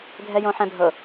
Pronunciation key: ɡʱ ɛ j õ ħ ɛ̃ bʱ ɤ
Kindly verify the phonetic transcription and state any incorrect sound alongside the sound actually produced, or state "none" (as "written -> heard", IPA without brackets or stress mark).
none